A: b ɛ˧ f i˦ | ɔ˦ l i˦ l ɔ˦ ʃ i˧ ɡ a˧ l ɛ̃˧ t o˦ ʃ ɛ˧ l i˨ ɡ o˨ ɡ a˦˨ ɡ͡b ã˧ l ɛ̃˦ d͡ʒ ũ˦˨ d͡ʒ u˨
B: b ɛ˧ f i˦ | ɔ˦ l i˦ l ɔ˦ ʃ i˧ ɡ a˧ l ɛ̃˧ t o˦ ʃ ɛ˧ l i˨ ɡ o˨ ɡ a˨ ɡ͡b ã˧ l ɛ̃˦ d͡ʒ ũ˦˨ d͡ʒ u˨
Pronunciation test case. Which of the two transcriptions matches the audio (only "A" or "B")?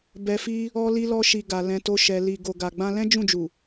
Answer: B